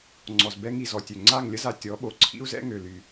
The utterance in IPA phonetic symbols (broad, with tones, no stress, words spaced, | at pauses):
ŋ͡ǀɔ˨z bɛ˧ŋi˨ zɔ˨tʲø˨ ŋ͡ǀa˦˨ŋ lʲə˦za˧ tʲɔ˨˦ɓo˨ ǀʰḭ˦u̯zɛ̰˦ ŋø˨ly˨